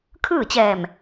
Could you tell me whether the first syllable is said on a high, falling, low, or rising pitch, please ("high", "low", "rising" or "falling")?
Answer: falling